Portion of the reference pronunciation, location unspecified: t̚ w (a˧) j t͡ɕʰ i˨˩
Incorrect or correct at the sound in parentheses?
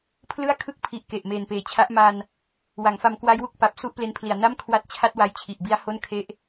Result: correct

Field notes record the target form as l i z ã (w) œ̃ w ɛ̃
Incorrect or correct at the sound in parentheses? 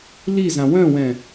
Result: correct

